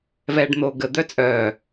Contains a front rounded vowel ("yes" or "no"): yes